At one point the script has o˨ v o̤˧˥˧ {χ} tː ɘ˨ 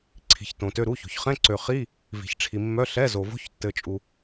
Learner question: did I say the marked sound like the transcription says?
no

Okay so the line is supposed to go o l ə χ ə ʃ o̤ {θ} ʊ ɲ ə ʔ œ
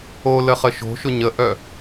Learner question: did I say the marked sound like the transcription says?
no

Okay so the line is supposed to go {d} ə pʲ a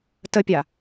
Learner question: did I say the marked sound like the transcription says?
no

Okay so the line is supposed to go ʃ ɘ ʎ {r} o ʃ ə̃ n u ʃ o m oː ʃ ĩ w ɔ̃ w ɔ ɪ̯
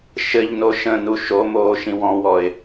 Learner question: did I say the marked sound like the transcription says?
no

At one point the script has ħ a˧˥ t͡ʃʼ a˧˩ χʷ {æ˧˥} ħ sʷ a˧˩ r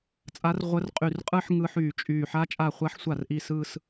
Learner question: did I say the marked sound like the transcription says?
no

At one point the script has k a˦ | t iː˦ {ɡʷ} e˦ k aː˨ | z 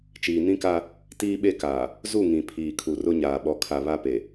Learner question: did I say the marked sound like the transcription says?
no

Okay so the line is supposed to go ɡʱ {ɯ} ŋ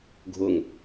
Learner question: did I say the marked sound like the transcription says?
no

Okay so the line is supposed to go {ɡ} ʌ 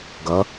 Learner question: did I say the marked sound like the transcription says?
yes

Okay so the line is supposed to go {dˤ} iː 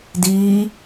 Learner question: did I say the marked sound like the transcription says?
no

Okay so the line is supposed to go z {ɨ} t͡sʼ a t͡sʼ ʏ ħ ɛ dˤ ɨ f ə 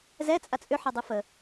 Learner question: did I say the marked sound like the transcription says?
no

